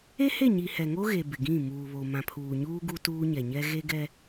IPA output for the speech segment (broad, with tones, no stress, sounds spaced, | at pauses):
e˦ h e˦˨ ɲ i˨ h ɛ˨ ŋ o˦ ɣ e˨ b ɪ˨ ɡ ĩ˦˨ m uː˨ β o˨ m ã˨ pʰ uː˨ ɲ uː˦ ɡ u˦ t uː˦ ɲ ɛ˨ ɲ ɛ˦ ɣ e˦ ɡ ɛ˦